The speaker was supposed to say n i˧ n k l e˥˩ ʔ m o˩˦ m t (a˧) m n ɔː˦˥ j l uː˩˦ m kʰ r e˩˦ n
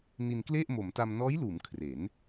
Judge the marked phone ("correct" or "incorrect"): correct